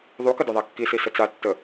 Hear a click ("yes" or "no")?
no